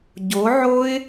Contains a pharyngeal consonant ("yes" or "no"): yes